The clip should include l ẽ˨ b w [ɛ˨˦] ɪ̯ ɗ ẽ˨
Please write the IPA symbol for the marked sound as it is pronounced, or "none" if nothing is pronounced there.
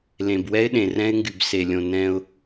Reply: ɛ˦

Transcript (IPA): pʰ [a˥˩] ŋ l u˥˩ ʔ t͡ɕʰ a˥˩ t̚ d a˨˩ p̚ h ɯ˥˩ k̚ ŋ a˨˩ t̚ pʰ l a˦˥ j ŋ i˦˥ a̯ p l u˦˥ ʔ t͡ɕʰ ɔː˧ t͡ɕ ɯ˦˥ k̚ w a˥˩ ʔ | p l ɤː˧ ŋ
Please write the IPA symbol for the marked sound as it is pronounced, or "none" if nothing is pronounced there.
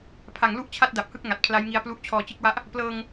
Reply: a˨˩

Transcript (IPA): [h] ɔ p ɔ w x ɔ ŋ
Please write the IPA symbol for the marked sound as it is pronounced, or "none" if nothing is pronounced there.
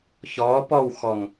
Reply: ç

